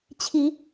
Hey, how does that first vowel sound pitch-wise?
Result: rising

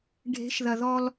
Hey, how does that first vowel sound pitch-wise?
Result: rising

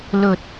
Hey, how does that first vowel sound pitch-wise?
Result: low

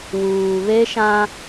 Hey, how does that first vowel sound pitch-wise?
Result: low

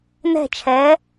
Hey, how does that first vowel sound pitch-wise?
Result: falling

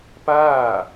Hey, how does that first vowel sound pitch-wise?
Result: falling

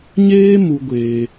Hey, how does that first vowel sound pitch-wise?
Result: high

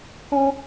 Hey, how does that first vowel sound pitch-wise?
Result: high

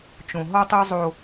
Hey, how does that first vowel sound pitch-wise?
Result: low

